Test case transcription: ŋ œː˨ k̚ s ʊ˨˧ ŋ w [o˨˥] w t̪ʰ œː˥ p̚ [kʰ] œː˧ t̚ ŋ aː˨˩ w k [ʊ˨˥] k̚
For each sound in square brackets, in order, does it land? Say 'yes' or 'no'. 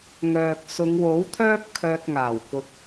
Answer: yes, yes, no

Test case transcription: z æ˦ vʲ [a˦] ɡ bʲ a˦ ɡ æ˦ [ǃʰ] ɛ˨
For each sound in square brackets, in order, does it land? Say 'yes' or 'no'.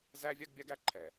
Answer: yes, yes

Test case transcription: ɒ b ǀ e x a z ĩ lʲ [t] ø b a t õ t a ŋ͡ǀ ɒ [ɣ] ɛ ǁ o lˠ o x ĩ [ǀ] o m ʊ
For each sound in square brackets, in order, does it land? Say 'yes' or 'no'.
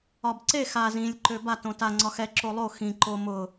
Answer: no, no, no

